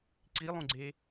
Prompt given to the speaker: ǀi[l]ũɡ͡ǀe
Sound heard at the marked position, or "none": lˠ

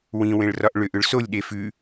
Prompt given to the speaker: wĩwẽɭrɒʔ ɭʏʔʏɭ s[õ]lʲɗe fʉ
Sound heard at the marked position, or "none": o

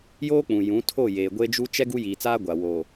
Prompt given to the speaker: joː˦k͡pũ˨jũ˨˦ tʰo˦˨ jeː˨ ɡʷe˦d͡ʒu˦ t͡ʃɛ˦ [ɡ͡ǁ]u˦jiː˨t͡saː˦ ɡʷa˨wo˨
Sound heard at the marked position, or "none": ɡ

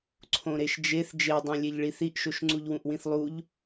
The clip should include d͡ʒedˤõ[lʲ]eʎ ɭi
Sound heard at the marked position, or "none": lʲ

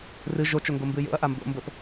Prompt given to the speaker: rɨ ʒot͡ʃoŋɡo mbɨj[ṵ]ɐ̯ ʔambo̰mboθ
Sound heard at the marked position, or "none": o̰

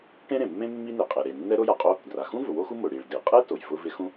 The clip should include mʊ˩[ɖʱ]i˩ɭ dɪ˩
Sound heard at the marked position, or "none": ɽ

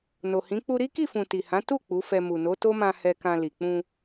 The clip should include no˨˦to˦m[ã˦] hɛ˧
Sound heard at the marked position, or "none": ã˧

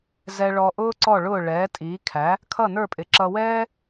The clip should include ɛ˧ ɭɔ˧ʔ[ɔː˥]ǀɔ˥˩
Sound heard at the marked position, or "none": ʊː˥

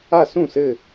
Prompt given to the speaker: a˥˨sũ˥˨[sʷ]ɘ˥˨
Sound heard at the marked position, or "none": s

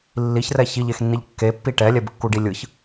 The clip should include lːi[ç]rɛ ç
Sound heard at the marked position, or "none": ç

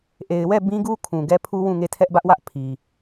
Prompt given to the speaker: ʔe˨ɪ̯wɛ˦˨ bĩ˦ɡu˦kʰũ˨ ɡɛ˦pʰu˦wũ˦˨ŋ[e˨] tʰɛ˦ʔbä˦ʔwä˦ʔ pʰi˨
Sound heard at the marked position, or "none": e˦˨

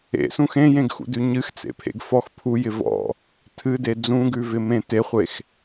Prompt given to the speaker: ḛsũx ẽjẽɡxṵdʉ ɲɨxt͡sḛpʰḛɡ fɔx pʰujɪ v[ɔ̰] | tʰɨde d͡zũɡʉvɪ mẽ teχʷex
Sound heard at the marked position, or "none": ɔ̰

